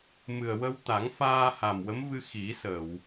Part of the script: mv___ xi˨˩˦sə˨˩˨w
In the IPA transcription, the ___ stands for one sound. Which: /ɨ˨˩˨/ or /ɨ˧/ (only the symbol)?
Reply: ɨ˧